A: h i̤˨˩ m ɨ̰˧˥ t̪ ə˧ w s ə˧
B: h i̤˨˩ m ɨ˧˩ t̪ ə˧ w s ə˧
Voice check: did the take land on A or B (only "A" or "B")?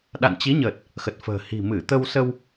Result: B